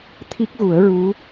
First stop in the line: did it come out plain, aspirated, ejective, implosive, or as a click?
aspirated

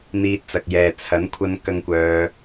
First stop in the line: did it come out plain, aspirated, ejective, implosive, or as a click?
plain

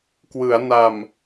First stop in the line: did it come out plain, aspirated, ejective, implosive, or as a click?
plain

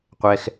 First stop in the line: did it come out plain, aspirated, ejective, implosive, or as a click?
plain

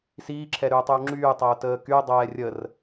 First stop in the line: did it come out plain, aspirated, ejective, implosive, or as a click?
click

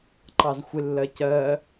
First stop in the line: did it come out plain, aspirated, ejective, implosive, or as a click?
click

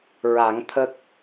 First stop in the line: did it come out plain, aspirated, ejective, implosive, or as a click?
aspirated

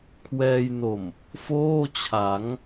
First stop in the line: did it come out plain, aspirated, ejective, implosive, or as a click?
aspirated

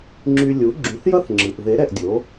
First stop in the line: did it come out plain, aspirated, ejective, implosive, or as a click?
click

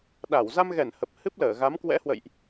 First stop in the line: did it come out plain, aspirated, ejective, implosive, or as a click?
implosive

